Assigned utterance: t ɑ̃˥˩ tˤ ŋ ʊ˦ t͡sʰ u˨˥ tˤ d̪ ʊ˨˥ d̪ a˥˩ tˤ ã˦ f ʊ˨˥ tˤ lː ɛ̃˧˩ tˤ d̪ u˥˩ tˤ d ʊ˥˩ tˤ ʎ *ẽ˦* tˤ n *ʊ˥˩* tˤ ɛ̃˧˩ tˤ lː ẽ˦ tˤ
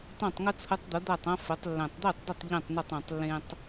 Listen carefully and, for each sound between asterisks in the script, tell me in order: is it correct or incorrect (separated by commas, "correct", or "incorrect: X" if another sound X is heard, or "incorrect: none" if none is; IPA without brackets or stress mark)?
incorrect: ẽ˥˩, correct